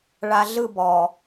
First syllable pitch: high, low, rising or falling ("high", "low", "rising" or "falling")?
low